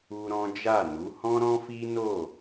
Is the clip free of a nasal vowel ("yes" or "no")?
no